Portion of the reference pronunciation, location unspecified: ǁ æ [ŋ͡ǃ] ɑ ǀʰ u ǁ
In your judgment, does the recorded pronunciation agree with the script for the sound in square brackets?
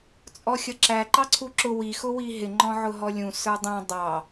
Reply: no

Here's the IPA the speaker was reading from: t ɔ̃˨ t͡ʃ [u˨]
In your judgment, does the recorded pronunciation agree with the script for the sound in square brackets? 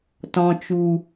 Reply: yes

